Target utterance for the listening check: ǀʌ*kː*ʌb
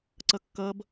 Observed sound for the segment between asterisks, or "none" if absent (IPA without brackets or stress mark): kː